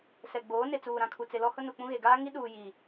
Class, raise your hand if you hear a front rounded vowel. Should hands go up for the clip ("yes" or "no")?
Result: no